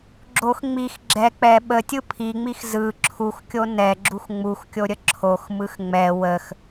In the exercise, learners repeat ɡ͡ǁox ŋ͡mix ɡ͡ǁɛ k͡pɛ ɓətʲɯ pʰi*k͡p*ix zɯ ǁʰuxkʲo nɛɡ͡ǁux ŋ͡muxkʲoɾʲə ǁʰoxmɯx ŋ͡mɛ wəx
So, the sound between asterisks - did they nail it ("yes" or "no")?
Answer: no